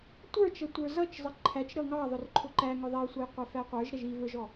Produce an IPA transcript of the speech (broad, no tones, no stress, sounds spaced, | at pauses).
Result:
tʷ ə˞ t͡ʃ ʌ tʷ ə˞ z ʌ t͡ʃ zˤ ə ǃʰ æ t͡ʃ ɾ ʌ ŋ ɑ ðˤ ʊ r ǃʰ ʊ ǃ æ ŋ ʊ ðˤ ɛ y̯ sʷ ʌ j qʷ ɛ f æ qʷ ə˞ ʒ ɾ ɛ ʒ i v ə˞ ʒ ɔ